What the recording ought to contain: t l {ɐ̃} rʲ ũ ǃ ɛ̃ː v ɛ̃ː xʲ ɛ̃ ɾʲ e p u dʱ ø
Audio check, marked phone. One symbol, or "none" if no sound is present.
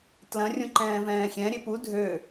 ɐ̃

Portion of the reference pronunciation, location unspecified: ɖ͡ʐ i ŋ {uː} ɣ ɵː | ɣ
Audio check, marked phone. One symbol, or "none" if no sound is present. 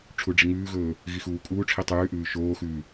ʉː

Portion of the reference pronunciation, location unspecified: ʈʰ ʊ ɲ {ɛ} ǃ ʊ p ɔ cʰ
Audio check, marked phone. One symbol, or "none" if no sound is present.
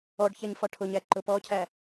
æ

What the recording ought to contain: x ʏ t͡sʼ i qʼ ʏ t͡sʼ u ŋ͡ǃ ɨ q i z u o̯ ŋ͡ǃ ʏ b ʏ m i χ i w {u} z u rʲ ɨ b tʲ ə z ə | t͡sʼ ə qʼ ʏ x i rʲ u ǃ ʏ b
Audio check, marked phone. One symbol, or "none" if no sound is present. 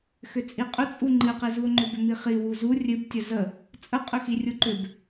u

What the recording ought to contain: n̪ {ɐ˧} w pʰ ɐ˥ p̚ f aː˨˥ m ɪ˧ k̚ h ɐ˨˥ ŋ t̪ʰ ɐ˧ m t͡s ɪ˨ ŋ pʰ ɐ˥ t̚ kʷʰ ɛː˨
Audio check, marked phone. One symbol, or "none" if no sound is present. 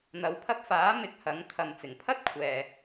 ɐ˨˧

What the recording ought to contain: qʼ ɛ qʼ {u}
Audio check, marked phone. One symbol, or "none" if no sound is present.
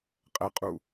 u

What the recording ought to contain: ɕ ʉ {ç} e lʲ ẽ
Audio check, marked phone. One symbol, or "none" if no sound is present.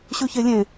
ç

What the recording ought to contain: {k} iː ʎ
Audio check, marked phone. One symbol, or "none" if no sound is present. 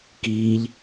k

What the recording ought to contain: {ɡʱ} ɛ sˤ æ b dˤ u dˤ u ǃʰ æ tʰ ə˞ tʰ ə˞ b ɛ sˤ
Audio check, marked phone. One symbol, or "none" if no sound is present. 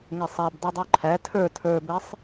ŋ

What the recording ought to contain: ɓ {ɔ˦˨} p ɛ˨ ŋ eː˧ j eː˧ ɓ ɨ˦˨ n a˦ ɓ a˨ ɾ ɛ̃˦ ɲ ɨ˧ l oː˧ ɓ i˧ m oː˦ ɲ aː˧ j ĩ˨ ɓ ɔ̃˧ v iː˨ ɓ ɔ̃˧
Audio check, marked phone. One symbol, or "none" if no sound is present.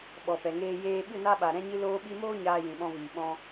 ɔ˨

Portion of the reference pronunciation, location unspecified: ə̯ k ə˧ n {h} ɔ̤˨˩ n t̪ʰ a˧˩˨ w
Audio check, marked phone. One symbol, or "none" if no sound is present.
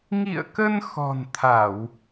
x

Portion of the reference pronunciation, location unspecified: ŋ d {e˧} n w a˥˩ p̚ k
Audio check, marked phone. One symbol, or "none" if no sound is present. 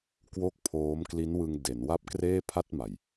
e˩˦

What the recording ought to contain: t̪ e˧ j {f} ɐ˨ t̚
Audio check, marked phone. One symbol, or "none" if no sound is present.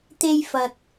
f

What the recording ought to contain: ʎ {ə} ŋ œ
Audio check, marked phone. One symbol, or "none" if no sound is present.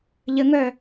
ə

